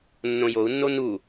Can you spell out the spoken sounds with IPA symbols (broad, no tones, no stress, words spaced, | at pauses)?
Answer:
nːõjou̯nːo nu